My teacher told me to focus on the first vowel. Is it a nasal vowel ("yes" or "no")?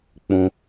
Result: yes